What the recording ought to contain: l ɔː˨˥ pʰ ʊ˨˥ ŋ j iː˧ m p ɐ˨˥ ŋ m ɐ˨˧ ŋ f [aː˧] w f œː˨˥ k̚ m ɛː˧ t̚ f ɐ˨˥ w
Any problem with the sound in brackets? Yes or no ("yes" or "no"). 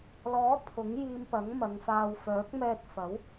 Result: no